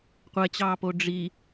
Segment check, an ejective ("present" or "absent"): absent